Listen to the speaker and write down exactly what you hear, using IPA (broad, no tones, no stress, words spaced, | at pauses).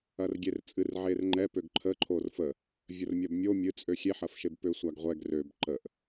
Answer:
ɐrɡʲert͡sʼɨr ʕerŋ͡ǃɛ pøɡǃʰəǃʰor fə | vʲərmʲɐbmʲo mʲɨt͡sʼø xʲeħɐfʃeb pøsʷaɡʁʷɛɡ røb ǃəʔ